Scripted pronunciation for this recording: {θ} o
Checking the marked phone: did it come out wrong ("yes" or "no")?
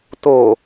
yes